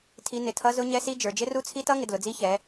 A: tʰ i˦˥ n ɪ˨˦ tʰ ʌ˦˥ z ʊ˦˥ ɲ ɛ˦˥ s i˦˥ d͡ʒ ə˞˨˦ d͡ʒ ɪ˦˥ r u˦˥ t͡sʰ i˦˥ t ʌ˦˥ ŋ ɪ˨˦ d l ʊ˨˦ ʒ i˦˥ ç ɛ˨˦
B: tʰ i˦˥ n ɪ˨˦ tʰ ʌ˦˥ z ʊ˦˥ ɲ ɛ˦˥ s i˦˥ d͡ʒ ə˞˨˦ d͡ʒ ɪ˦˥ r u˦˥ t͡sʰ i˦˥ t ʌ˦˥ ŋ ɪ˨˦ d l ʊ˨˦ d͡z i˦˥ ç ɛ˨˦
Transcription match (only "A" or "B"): B